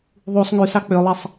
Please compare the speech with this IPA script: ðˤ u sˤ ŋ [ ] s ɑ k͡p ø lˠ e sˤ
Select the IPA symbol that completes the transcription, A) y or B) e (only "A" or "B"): A